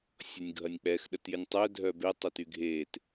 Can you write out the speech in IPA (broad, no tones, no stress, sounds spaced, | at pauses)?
sʲ ɔ nʲ ɡʱ ɐ nʲ k͡p ɛ x ɗ ə t j ɪ nʲ tˤ œ dʱ œ b e tˤ œ t y ɡʱ e t